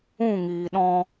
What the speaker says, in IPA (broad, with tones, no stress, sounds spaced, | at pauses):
ũ˦˨ ŋ iː˨ ɗ ɔ̃˧